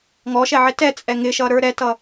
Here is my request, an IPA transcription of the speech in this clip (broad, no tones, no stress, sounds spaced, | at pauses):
ŋ ɔ ʃ ɛ ʕ ɪ t ɛ t͡sʼ ɛ ŋ ɪ ʃ ʌ ɾ ə˞ ɾ ɛ t ʌ